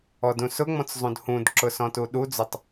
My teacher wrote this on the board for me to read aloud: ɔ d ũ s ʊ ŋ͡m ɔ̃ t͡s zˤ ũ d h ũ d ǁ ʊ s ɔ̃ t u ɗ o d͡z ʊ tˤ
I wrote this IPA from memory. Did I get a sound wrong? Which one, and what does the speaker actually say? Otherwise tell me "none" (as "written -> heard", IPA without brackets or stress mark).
o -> u